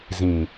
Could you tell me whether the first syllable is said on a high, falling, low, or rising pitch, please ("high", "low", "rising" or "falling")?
low